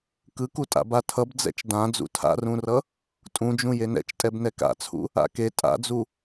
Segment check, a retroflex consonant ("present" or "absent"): absent